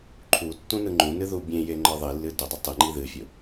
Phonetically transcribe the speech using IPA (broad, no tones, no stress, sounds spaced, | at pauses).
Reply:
ǃʰ u tː ũ n ɯ ŋ͡ǃ ũ n ɨ ð u bʲ ẽ j e ŋ͡ǃ ə˞ ðˤ i lː ɨ d ʊ dˤ ɨ tˤ ɨ ŋ͡ǃ i ð ɨ fʲ ʊ